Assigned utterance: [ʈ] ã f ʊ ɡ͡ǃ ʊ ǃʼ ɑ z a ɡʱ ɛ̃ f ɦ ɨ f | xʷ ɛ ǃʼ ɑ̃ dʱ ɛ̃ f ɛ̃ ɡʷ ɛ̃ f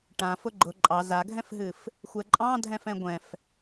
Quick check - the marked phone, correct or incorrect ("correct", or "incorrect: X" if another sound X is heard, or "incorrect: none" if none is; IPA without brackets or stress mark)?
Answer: correct